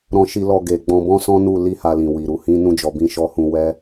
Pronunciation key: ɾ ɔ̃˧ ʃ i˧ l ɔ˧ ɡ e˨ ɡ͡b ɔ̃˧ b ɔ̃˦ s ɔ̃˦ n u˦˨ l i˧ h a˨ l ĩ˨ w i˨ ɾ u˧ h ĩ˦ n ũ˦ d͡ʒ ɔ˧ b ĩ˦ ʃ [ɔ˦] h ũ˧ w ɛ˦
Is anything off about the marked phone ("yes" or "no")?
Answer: no